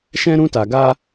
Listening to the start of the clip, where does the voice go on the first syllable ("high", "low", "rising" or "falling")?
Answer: high